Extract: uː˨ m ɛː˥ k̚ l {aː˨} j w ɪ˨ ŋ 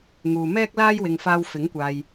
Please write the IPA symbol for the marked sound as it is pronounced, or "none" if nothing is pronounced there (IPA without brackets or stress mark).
aː˥